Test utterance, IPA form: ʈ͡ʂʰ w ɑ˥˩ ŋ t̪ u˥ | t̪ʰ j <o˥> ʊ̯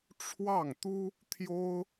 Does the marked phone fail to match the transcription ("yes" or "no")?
no